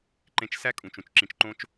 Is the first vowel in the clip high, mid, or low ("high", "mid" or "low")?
mid